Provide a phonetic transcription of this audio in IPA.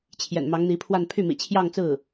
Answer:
t͡ɕʰjɛ̰˨˩nmɑ˧˥ŋn̪i˧˥pʰwa˥˧n pʰy˥˩mḭ˨˩ t͡ɕʰjɑ˥˧ŋt͡sɹ̩˥˩

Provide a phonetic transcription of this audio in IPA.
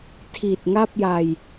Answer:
tʰi˨˩t̚ŋa˥˩p̚ja˧j

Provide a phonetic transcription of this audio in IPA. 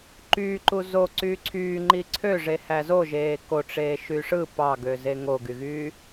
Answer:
ǃyːǃu zoǀyː ǀʰyːŋ͡ǃi ǀʰøʐehæ zoʒeː koʈ͡ʂeːʃy ʂɯ pɑɡøze ŋoɡyɣyː

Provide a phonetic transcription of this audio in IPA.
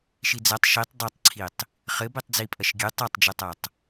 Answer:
ʃid͡zɐtˤ ʃitˤ dˤɐtˤǀʰitˤ | χɘ bitˤd͡zipʼɐʃɡʲɨ tˤatˤd͡ʒɨtˤatˤ

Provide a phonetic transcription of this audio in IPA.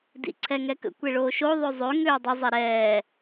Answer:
dḭǀʰɛŋɛkə̰ kʷeɭoːʃo ðˤøzˤø ŋøːdˤɪ zˤeɾɛː

